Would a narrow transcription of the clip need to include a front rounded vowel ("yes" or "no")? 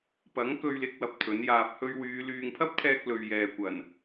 yes